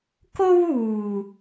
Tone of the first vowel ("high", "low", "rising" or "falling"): high